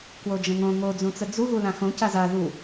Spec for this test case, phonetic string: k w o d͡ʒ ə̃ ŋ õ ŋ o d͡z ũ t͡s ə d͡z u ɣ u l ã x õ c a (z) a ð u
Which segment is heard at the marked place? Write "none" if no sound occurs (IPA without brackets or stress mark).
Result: z